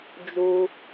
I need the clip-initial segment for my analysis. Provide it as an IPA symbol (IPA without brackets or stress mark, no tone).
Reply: d͡ʒ